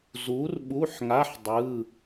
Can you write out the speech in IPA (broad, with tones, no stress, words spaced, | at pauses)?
zu˨˥rɓu˧˥˧ħŋa˧˥˧ħ dˤɯ˧˥˧